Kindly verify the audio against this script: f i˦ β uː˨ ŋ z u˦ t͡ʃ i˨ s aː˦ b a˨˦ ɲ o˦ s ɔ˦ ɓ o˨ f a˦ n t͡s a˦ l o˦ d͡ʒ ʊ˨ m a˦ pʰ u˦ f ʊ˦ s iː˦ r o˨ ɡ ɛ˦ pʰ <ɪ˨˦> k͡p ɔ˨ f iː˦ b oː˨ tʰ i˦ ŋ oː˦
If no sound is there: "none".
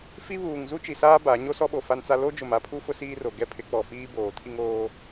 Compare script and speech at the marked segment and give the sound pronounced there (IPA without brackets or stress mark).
ɪ˨˦